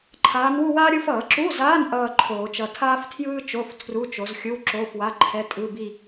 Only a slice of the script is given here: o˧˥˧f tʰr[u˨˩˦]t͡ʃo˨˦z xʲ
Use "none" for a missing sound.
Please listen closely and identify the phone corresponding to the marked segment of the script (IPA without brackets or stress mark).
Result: u˧˥˧